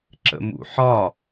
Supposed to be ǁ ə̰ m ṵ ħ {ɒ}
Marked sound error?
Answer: no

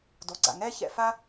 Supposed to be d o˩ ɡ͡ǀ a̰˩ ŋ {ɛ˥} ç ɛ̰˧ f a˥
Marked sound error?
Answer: no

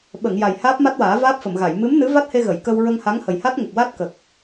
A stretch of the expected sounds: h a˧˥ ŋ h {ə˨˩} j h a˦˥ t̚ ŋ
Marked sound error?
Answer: no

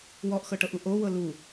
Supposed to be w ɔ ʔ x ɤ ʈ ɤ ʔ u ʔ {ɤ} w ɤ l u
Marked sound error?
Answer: yes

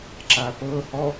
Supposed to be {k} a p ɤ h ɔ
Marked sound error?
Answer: yes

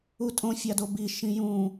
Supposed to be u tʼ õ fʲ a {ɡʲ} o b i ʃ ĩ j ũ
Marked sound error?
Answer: yes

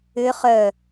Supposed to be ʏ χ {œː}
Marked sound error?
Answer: yes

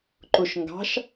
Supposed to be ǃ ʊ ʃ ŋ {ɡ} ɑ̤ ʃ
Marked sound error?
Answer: no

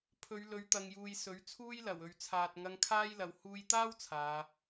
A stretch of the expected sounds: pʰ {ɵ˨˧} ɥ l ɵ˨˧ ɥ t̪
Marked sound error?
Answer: no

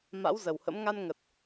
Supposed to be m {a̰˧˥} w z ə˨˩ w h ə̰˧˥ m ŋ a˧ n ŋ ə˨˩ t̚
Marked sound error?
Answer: no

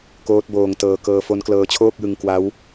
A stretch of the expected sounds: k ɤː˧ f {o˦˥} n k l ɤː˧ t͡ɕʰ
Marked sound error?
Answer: no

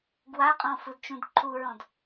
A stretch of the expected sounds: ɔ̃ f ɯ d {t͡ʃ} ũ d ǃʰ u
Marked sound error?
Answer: no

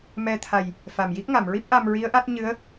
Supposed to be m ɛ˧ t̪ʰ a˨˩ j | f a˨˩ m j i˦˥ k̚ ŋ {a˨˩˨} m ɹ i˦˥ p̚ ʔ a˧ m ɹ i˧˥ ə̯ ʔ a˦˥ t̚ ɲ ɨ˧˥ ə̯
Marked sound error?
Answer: no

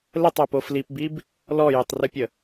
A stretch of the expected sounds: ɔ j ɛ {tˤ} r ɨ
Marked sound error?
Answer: no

